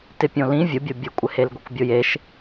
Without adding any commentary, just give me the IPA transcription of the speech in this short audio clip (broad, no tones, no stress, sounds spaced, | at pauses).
t ɪ pʲ õ l ĩ vʲ ʊ bʲ ʊ bʲ ʊ kʷʼ ɪ h e l ɡʷ e kʷ bʲ ʊ j e ʃ